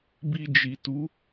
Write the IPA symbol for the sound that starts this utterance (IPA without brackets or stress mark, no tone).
b